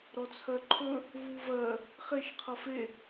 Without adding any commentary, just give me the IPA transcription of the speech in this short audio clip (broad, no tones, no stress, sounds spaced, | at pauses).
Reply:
ɾ ɔ t͡sʰ ɜ ǃʰ ɵ | v u v ɜ | χ e ʃ qʰ ʌ f e